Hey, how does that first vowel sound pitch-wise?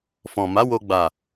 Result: low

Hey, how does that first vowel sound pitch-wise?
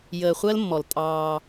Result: low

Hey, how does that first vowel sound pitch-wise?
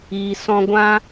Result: low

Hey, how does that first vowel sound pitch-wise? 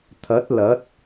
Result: rising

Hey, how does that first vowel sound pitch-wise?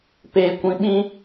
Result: low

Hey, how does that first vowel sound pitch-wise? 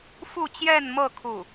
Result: falling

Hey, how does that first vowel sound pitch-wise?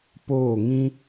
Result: falling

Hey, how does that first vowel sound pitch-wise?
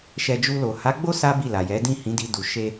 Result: low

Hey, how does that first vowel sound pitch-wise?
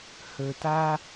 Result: low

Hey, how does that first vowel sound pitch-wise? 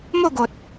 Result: falling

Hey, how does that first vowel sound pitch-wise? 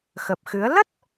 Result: low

